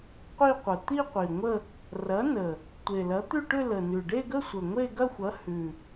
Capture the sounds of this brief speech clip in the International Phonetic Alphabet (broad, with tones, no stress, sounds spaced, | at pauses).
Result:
qʷ i˥˧ qʷ ə˨˩ t̪ i˥˧ qʷ i˨˩ ŋʷ ə˥˧ | r ɐ˨˥ n ə˨˩ | tʷ e˨˩ l ɐ˨˥ t̪ ʉ˥˧ ʈ ʏ˥˧ l ə˨˩ n ʉ˨˩ ɖ e˥˧ ɡ ə˥˧ sʷ ə˨˩ ŋʷ e˥˧ ɡ ɐ˥˧ xʷ ɐ˨˥ h ʉ˨˩